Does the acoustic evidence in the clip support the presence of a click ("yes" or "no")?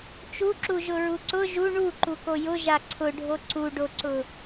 yes